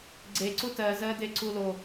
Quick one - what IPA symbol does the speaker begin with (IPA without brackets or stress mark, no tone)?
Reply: ɡ͡ǀ